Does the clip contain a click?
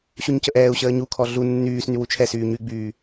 no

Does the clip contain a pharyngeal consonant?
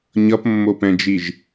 no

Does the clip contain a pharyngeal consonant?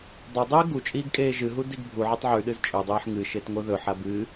yes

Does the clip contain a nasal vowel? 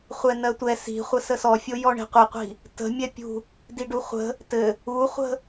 no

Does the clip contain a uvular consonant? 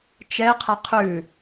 yes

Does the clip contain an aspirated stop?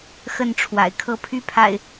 yes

